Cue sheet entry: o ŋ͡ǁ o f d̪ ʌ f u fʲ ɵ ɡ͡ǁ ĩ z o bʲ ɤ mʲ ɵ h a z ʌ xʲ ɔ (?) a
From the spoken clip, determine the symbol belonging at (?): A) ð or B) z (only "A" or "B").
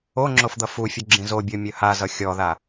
A